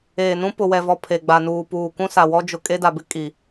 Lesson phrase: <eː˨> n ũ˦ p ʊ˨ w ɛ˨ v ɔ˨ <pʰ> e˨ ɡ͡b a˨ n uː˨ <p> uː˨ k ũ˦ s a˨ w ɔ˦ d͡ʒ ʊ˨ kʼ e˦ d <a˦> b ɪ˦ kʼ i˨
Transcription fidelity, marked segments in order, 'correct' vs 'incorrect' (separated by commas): correct, correct, correct, incorrect